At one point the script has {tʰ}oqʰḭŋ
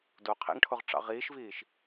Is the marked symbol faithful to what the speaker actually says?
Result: no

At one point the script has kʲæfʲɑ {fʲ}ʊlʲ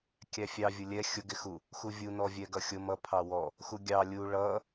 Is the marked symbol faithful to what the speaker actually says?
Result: no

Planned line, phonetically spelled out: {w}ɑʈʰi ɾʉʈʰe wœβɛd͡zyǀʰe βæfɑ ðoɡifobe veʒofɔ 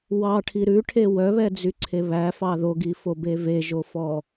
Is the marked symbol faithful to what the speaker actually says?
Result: yes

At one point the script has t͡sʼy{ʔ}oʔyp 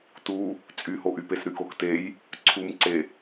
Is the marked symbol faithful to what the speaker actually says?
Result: no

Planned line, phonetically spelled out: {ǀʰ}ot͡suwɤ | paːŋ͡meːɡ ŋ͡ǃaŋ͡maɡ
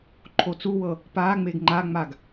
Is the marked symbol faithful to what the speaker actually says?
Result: no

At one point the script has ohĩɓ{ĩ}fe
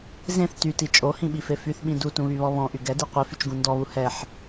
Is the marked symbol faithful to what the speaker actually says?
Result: no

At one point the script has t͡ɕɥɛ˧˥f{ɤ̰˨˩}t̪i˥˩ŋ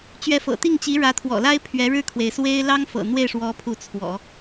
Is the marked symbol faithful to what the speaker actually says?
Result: yes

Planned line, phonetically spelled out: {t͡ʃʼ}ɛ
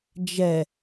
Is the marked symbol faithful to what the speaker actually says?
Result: no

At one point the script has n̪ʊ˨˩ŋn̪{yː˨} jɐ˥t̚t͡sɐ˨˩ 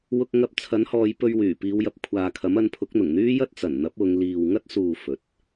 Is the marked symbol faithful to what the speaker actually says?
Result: no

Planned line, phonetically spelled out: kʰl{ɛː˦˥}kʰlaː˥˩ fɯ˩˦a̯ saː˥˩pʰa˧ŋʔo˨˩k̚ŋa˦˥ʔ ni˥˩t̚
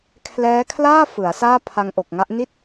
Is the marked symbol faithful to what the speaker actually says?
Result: yes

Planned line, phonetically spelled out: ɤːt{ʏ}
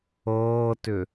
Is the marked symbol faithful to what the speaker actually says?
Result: yes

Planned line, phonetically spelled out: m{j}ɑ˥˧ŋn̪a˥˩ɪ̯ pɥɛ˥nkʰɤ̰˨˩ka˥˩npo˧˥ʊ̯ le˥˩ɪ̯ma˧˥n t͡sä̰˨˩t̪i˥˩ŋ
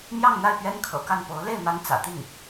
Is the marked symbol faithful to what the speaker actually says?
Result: yes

